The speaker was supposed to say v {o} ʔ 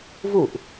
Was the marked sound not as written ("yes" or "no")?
yes